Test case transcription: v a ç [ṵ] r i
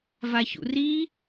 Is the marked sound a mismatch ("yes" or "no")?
no